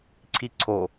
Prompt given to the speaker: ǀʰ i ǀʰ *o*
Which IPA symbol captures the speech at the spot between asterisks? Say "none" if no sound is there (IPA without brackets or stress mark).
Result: o